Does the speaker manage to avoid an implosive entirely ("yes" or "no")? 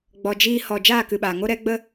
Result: no